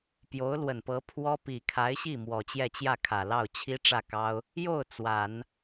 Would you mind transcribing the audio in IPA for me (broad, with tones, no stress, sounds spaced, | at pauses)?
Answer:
p j o˧˥ ʊ̯ l w ə˨˩ n p ɤ˧˥ pʰ w ɔ˥ p i˨˩ kʰ a˧˥ ɪ̯ ɕ i˥˩ m w ɔ˨˩ t͡ɕ j ɛ˥˧ t͡ɕ j ä˥˩ kʰ ä˨˩ l ɑ˥˩ ʊ̯ t͡ɕʰ i˥ ʈ͡ʂ ä˥˩ k ɑ˥ ʊ̯ | j o˥˩ ʊ̯ t͡s w a˨˩˦ n